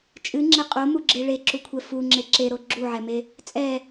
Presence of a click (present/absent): present